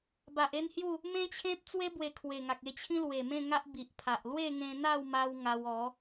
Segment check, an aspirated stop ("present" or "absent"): present